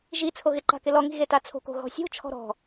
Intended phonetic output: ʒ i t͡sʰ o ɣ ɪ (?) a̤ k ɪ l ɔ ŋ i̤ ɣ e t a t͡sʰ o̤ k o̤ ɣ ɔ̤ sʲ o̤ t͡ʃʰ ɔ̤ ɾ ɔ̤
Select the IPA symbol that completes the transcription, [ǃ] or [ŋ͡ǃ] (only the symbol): ǃ